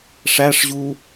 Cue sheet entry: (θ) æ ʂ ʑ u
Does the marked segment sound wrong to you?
yes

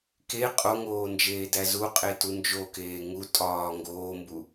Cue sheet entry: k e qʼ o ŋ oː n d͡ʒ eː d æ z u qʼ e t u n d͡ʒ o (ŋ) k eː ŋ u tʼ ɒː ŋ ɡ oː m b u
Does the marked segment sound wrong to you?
yes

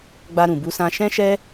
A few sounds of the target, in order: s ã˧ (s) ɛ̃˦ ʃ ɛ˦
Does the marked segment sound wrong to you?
yes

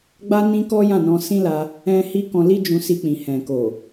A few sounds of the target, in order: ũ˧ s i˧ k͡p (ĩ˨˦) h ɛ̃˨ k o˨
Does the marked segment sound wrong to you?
yes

